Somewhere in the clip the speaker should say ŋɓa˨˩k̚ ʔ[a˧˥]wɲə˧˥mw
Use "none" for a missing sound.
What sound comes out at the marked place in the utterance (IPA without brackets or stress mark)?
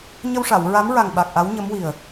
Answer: a˧˥